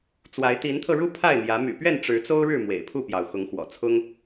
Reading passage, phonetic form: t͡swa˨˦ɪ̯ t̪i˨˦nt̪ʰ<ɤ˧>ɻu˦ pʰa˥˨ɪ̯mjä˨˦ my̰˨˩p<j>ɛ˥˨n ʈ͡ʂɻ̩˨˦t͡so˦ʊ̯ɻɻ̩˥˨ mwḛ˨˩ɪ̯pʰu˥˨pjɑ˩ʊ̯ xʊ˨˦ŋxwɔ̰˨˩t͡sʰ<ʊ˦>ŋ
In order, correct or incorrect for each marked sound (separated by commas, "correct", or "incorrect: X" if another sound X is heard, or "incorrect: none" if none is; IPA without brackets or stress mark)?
correct, incorrect: ɥ, correct